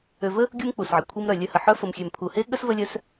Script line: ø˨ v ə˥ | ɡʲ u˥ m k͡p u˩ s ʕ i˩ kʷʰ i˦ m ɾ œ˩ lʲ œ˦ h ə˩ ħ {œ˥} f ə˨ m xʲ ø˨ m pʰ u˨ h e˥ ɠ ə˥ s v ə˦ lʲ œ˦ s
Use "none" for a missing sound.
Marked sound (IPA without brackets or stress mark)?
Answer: œ˥